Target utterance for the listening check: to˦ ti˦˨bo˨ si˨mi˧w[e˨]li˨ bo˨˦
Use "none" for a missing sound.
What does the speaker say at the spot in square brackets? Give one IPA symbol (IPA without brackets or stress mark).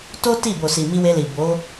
e˧